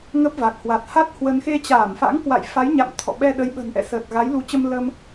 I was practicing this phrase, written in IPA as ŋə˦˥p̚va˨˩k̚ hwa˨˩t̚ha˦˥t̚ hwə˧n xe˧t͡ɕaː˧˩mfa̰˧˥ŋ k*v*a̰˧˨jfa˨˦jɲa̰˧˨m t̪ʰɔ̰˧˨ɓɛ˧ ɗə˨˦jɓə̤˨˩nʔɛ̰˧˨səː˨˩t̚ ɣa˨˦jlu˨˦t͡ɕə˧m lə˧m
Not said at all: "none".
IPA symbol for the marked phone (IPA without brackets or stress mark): w